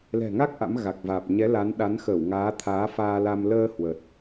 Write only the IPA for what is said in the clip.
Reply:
l ɛ̤˨˩ ŋ a˦˥ k̚ ʔ a̰˧˥ m ɣ a˨˩ k̚ v aː˨˩ p̚ ɲ ɛ˨˦ l a˨˦ n ɗ a˨˦ n x ə˧˩ w ŋ aː˨˦ t̪ʰ aː˨˦ f aː˧ l a˧ m l əː˧ h w ə˨˩ t̚

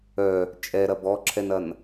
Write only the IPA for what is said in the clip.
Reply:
œ | t͡ʃʼ ɛ ɾ ɐ b ɔ ǁʰ ɛ n ɐ n

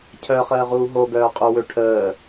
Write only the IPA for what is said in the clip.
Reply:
cʰ œ χ əː ʁ uː ɦ o ɡ œː qʼ u w ø ʈʰ əː

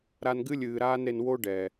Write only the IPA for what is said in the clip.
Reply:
ɾ a˧ n ɡ ɨ˦ lʲ ɨː˨ ɾ aː˦ n ɾ e˧ n w o˦ ɖ ɛ˨

